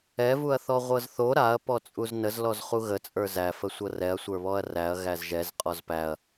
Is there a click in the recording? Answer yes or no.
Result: no